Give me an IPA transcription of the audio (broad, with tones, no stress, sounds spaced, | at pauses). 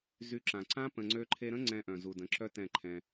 z y˧ ǁ ã˨ ǀ ã˦ p ə̃˨ ŋ͡ǀ ø˧ ǃʰ e˧ ɾ ə̃˦ ŋ͡ǀ ɛ̃˧ ʔ œ̃˨ z u˨ d ə̃˨˦ ǁ œ˦ t ɛ̃˦˨ ǃʰ ɛ̃˧